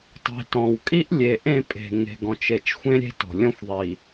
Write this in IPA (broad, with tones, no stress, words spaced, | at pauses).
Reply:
tˤi̤˨tɔ̃˨w kʼi˦ʔlʲe˨ ʔẽ˦˨pʼe̤˨ ŋe̤˨ɡɔ̃˨t͡ʃe˨t͡ʃxʷẽ˦ ɾʲe̤˦tɔ̤˨ lʲɔ̃˦xʷðˤi˨